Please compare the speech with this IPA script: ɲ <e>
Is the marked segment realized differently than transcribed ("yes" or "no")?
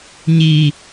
yes